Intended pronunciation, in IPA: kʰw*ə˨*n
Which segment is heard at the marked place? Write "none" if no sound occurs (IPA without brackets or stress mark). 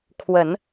ə˨˩˦